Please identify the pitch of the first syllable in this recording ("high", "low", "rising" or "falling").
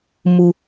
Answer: low